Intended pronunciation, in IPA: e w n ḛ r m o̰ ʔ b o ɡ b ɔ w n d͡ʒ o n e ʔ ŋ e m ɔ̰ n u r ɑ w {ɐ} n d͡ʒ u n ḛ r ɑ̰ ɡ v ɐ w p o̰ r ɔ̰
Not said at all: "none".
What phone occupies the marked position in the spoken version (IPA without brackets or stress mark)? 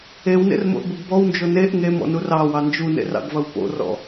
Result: ɑ